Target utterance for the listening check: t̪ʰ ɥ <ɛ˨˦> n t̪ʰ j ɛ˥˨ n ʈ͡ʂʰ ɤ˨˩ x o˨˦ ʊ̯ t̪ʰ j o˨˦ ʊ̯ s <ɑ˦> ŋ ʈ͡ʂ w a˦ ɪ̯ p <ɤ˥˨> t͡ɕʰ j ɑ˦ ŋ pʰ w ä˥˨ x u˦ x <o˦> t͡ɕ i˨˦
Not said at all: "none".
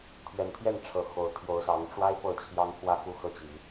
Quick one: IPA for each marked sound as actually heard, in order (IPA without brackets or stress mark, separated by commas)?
ɛ˨˩, ɑ˨˦, ɤ˥˨, ɤ˦